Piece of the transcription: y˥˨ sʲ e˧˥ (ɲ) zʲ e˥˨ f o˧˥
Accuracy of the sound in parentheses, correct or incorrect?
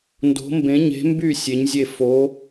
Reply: correct